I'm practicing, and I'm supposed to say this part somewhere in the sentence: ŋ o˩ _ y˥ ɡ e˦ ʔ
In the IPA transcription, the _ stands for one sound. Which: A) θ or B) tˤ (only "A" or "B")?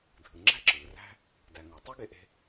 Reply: B